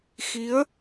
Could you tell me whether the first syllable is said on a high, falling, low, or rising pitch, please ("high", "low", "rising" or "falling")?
rising